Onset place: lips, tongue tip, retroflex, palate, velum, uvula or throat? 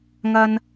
velum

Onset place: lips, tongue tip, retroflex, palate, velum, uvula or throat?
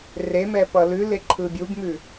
tongue tip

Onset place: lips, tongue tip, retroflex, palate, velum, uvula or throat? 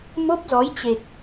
lips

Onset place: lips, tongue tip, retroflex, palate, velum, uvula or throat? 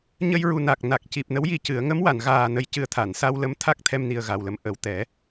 palate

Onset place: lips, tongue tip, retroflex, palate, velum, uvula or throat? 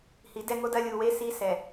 throat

